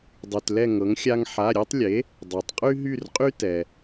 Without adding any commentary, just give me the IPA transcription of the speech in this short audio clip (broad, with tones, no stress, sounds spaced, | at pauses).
dˤ y˩ t l ɛ˦˨ ŋ ɤ˩˥ ŋ xʲ a˦ ŋ ħ a˩˧˩ ɾʲ e˦ tˤ lʲ e˩˥ | dˤ œ˩ tˤ qʼ y˦ ɦ y˦˨ r qʼ y˦ t ɛ˩